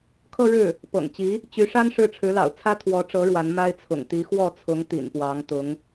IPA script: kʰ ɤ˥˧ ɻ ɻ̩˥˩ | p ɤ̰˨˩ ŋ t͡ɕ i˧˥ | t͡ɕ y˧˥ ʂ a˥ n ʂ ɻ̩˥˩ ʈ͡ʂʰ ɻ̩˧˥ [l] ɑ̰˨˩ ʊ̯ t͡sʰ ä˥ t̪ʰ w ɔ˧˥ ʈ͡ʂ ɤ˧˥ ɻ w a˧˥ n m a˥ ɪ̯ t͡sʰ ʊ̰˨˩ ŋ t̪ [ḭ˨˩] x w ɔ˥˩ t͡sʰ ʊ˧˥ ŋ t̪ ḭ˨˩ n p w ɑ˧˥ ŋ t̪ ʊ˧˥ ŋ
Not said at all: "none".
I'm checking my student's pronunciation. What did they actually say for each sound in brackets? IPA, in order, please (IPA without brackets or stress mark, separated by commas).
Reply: l, i˧˥